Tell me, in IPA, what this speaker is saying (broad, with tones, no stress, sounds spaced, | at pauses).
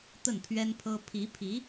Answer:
t̪ ə˥˩ n pʰ ɥ ɛ˥ n pʰ ɤ˥ pʰ i˧˥ pʰ i˧˥